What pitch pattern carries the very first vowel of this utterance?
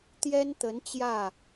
high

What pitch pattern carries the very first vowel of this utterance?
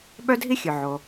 high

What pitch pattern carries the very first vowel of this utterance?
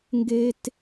high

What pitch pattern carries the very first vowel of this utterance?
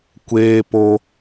high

